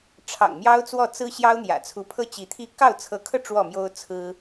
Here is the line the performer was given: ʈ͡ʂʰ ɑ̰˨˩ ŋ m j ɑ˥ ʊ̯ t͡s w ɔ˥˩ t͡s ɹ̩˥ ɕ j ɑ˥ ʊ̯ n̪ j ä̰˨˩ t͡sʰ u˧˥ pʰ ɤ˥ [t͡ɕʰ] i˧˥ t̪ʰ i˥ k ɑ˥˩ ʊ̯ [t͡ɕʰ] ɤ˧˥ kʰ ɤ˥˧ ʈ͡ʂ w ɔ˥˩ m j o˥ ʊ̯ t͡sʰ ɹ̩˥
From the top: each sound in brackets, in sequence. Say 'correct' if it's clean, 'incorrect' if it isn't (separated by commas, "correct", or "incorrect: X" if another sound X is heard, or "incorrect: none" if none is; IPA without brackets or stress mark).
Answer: incorrect: t͡ɕ, incorrect: t͡sʰ